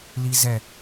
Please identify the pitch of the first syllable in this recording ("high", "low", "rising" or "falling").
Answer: high